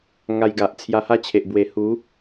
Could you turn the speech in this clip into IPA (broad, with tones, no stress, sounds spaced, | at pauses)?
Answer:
ŋ a˧ j ɡ a˨ ʔ t͡sʰ j a˧ h a˥˧ t͡ɕʰ e˨ ʔ b w e˨˩ h u˨˦